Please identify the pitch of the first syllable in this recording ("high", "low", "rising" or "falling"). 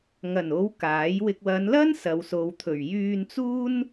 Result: low